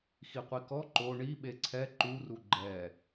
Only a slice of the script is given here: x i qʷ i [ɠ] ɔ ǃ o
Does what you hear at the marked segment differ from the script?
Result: yes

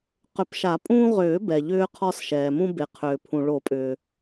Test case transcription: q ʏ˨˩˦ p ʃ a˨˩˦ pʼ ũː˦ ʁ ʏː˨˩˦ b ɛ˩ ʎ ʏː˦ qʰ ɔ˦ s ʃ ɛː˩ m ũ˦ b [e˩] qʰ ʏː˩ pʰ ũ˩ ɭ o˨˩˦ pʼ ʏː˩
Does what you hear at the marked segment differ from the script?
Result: no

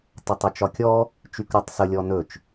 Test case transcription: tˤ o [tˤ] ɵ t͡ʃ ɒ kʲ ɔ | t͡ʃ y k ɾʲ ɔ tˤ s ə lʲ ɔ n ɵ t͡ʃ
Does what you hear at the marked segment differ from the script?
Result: no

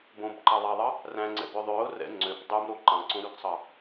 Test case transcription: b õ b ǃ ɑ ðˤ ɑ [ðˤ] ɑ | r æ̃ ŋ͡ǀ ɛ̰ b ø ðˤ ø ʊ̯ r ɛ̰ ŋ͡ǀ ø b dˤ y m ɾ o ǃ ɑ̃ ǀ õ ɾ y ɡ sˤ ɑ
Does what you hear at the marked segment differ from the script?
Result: no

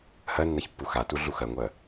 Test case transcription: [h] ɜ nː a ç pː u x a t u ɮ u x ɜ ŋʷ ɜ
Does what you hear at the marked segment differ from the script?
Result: no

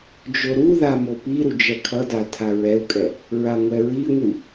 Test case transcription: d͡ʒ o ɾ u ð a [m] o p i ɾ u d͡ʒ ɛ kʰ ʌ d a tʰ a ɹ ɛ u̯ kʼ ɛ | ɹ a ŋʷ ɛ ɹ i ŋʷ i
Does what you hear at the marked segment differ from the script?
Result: no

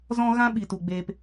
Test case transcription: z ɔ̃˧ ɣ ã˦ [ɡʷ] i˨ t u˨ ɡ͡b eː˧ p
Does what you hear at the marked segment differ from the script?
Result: yes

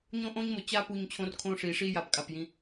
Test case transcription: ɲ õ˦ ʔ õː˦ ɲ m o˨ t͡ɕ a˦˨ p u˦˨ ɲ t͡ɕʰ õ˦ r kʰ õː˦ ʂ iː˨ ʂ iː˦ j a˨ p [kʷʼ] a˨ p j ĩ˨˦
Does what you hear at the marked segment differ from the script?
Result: yes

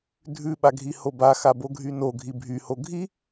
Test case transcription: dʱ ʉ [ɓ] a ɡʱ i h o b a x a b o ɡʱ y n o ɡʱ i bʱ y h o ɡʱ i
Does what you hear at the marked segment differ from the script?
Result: no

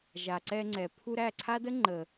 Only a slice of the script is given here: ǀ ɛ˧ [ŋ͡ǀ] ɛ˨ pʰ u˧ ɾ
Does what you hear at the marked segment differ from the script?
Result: no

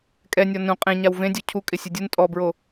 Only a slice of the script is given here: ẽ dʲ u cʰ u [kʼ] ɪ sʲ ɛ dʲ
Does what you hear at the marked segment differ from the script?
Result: no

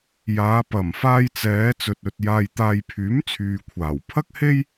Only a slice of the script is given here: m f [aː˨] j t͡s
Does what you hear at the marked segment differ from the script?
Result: yes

